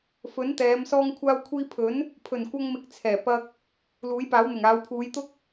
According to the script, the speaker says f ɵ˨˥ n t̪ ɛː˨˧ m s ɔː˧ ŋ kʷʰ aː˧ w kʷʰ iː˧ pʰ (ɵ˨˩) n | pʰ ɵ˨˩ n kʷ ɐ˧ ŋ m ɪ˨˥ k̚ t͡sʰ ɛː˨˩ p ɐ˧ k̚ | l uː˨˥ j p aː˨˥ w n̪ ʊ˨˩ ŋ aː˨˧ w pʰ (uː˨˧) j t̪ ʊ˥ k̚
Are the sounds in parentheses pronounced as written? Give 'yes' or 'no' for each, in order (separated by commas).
no, yes